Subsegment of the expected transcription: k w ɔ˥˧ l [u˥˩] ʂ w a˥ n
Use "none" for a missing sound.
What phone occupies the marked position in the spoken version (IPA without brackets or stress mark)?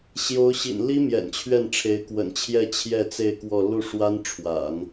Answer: u˥˩